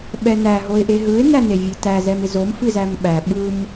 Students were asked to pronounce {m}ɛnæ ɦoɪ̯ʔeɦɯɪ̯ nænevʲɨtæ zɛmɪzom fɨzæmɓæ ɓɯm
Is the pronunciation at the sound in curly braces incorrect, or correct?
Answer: incorrect